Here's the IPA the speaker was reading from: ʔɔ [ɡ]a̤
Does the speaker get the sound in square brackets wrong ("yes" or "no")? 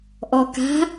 yes